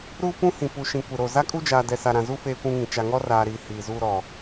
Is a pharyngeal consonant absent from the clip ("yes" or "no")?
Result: yes